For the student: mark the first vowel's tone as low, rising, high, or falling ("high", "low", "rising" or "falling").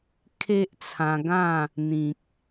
high